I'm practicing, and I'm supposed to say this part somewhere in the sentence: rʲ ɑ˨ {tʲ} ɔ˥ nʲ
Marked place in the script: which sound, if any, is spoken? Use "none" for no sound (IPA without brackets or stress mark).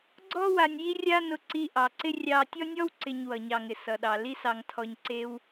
tʲ